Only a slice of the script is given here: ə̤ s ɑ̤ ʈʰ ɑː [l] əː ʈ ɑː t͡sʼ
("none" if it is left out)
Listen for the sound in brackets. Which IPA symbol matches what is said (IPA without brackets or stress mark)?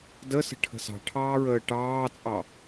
ɹ